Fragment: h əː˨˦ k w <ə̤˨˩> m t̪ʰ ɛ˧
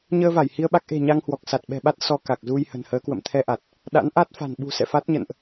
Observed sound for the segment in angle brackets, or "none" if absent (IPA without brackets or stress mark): ə̰˧˨